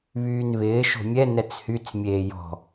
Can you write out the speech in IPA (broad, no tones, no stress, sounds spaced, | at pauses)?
β yː n β ɪː ʃ o̤ mʲ ɛ n ɛ t͡s h y t͡s mʲ eː j ɔ̤